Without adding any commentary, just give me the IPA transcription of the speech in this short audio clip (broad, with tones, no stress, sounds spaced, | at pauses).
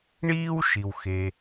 ɳ iː˥ w ʃ i˩ w x e˩